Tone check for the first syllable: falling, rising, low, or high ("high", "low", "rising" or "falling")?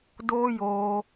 high